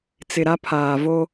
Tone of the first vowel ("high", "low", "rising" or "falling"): low